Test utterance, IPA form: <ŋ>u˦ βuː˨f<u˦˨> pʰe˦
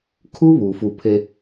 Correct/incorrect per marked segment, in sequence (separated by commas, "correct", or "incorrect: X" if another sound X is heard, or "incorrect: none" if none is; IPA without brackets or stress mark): incorrect: kʰ, correct